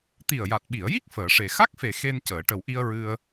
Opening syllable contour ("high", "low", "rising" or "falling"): low